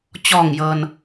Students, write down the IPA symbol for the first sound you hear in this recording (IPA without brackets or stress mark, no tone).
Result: t͡ɕ